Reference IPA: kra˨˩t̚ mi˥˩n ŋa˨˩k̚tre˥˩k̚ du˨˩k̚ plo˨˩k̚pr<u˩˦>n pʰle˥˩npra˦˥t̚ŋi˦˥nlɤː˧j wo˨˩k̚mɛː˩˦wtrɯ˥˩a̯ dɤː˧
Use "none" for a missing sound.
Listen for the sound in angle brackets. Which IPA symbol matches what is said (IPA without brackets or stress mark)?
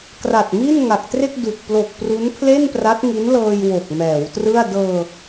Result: u˦˥